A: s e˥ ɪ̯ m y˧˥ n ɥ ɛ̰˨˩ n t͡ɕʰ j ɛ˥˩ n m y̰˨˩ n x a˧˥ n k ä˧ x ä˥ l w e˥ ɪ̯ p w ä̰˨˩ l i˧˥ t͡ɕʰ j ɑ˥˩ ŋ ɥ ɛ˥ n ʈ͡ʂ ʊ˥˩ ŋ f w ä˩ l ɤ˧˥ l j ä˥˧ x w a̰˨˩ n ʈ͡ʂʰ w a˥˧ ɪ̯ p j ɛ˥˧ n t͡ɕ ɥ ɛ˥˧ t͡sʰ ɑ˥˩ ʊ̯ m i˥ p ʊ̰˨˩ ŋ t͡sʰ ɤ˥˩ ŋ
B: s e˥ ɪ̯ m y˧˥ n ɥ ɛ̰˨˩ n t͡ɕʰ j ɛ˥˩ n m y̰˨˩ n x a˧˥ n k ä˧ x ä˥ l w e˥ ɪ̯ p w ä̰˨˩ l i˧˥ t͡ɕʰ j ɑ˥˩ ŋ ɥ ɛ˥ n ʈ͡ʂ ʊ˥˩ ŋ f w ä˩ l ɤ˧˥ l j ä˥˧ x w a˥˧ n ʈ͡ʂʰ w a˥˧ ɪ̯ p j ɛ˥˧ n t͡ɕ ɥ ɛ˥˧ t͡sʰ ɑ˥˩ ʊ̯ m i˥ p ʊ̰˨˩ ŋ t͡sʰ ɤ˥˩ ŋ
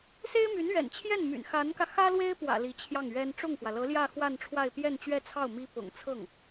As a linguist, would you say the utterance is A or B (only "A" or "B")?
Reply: B